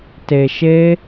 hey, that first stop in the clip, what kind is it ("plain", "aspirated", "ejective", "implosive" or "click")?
plain